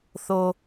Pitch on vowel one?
high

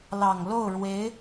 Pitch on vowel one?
low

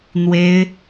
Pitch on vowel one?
high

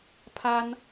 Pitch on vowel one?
high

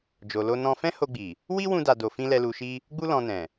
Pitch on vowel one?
low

